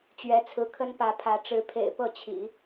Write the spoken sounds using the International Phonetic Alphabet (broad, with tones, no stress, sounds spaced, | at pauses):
t͡ɕ ɥ ɛ˧˥ t͡sʰ ɹ̩˧˥ kʰ ə˥ n p ä˧˥ pʰ ä˧˥ ʈ͡ʂ ɻ̩˧˥ pʰ ḛ˨˩ ɪ̯ p ɤ˥˩ t͡ɕʰ ḭ˨˩˦